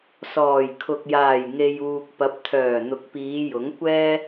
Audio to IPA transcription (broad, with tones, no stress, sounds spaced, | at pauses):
s ɔː˨˩ j kʰ ʊ˨ k̚ j aː˨˩ j ŋ e˨ j uː˨ k̚ p ɐ˨˥ p̚ t̪ʰ œː˨˩ n̪ ʊ˨˥ k̚ p iː˨˧ j ʊ˨˥ ŋ kʷ ɛː˥